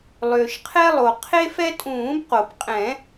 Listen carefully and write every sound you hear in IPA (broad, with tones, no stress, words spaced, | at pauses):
lˠʏː˩ʃqʰɛ˦lˠo˩ qʰe˦fɛ˦tʼũː˨˩˦bqo˩p qʼɛ̃˨˩˦